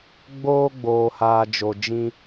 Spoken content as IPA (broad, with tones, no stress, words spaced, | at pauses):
ɡ͡boː˦ɡ͡boː˨haː˨ d͡ʒo˨d͡ʒĩ˦